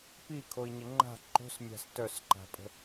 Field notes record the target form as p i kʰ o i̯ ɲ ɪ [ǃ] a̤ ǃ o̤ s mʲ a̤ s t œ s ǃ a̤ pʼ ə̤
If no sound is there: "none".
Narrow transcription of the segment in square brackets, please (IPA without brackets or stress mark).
ŋ͡ǃ